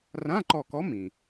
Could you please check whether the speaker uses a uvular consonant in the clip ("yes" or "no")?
no